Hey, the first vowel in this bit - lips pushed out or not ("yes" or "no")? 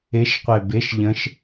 no